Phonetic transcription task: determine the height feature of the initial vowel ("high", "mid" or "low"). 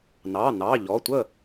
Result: low